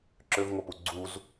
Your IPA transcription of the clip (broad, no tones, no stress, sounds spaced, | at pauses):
ǁ ø v ŋʷ œ p u ɡ͡ǀ u z